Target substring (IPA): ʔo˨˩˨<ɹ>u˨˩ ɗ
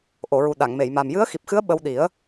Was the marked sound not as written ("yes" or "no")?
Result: no